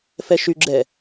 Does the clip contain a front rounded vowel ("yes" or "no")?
yes